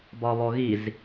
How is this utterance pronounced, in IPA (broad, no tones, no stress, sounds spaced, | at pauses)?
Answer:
b ɒ β ɔ ɣ i z